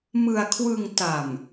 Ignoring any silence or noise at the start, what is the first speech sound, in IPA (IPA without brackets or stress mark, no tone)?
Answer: m